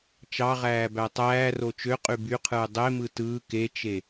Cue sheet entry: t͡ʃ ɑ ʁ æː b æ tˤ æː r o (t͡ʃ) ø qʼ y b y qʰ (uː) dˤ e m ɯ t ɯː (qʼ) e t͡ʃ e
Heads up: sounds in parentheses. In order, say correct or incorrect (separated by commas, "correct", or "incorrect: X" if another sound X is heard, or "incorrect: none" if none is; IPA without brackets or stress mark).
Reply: correct, incorrect: ɯː, incorrect: k